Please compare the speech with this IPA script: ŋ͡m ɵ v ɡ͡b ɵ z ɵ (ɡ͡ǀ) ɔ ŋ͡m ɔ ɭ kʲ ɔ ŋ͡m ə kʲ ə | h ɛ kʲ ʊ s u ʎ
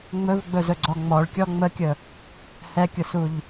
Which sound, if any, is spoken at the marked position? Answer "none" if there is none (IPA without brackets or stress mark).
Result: ɡ͡ǀ